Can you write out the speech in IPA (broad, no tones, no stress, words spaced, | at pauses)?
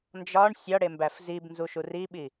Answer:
nd͡ʒɒɳ sʲɒɽembæf zibnzuʃu riɓi